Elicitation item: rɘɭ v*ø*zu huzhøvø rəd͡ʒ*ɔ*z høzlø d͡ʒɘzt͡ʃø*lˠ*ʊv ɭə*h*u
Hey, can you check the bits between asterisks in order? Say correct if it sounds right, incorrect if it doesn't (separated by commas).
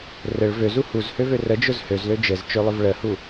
correct, incorrect, correct, correct